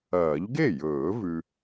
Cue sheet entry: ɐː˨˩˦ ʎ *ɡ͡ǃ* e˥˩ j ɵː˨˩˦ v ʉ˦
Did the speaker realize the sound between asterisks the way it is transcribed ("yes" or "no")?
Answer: no